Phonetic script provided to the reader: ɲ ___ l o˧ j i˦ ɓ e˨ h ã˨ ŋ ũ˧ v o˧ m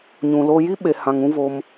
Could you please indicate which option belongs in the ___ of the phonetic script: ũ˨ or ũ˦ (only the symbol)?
ũ˨